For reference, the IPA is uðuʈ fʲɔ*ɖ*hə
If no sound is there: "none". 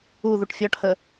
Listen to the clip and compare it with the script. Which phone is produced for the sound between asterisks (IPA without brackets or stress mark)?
ʈ